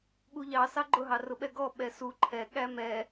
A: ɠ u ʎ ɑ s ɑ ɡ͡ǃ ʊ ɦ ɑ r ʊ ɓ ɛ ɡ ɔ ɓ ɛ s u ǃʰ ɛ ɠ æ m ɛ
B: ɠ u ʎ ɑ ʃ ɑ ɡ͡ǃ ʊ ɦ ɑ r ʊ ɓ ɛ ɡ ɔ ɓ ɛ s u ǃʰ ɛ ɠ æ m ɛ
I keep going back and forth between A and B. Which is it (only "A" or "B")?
A